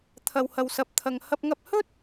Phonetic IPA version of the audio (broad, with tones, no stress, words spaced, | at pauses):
t̪ʰɐ˧whɐ˧wsɐ˧p̚t̪ʰɐ˧ŋ hɐ˧p̚ŋɐ˧p̚hɵ˥t̚